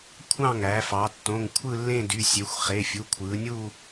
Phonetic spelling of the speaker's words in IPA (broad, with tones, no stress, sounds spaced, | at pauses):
kʷʰ ɑ̃˥˧ ŋ æ˩˧ f ɑ˩˧ tː õ˩˧˩ ŋ kʷʰ ɯ˥˧ lː ẽ˥˧ d y˩˧˩ sʲ e˩˧ xʷ χ e˩˧˩ fʲ u˩˧˩ kʷʰ ɯː˩˧ nʲ u˥˧